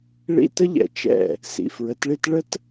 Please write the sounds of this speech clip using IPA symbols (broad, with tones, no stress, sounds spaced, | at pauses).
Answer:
ɭ ḭ˦ t ə˦ ʎ ɛ̰˨ t͡ʃ ɛ̰˦˨ | s ḭ˨ f ɹ ə˨˦ t ɭ i˦ t ɭ ə˦ t